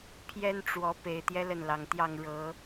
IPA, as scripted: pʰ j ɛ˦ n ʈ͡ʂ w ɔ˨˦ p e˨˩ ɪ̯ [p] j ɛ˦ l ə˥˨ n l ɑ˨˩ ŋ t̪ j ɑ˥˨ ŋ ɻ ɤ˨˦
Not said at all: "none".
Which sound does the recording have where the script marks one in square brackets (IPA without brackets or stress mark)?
t̪